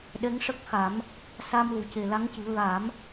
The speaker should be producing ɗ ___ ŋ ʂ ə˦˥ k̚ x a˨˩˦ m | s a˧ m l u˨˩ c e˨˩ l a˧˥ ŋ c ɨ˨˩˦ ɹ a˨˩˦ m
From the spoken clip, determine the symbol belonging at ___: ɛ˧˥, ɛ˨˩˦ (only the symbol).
ɛ˧˥